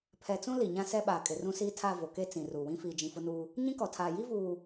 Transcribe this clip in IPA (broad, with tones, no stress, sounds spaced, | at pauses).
pʰ ɛ˨ t͡s ũ˦ l i˨ ɲ ã˦ s ɛ˦ ɓ aː˨ kʼ ɪ˨ r ũ˦ s iː˦ tʰ a˦˨ v o˨ k e˦ t͡s ĩ˨ r u˨ w ĩ˦ f iː˨ d͡ʒ ĩ˨ f ʊ˦ n uː˦ | ɲ ĩ˦ k ɔ˨ tʰ aː˨ j i˦ v uː˨